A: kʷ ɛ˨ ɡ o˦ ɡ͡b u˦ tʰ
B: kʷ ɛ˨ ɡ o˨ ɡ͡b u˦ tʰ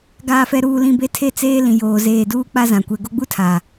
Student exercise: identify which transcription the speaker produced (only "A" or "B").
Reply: A